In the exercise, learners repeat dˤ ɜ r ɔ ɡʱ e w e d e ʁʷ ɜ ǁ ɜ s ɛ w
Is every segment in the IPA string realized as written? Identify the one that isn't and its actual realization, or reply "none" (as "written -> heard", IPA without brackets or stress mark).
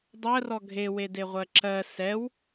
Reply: none